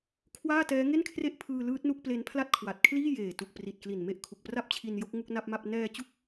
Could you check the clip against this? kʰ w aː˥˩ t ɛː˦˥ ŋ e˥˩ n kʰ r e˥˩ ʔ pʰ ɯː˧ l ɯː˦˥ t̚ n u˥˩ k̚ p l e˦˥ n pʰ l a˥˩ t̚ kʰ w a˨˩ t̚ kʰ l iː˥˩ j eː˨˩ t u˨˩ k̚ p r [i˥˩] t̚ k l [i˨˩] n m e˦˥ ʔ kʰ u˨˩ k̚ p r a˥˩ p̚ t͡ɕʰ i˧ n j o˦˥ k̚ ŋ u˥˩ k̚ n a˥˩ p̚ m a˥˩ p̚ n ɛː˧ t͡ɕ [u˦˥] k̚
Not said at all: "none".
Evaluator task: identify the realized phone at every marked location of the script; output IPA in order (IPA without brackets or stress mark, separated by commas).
i˨˩, i˨˩, u˦˥